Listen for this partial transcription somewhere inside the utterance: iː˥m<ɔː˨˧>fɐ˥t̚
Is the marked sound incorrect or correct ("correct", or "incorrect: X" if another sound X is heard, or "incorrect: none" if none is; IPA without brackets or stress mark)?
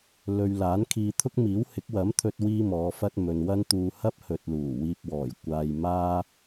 correct